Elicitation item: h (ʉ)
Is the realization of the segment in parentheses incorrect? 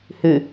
no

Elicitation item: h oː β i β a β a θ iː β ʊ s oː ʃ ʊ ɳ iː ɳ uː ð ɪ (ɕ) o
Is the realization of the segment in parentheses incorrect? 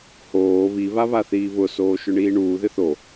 yes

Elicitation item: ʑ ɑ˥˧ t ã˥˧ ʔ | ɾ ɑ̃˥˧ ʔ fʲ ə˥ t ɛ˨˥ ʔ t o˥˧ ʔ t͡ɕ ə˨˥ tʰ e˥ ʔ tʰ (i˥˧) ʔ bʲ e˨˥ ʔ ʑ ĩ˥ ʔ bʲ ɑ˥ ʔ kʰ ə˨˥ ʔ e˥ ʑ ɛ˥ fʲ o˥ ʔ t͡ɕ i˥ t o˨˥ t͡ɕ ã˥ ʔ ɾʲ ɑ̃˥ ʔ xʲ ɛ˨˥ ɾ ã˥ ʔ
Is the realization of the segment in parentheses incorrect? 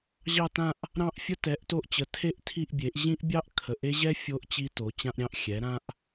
no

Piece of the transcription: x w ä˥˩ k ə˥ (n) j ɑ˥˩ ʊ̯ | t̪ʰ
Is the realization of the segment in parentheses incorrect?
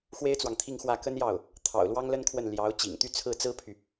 no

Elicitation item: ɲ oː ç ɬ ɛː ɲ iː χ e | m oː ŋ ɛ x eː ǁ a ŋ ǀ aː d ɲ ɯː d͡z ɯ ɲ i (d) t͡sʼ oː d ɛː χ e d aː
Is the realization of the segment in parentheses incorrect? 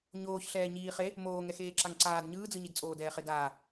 no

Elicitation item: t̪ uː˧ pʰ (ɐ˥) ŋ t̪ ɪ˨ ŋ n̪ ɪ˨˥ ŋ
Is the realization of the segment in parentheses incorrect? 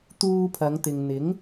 yes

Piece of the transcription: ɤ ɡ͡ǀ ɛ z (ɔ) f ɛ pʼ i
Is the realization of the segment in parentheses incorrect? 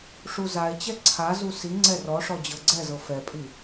yes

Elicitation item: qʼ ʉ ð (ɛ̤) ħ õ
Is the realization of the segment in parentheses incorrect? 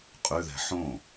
no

